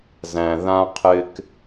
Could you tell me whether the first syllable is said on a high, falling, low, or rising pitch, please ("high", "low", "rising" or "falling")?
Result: low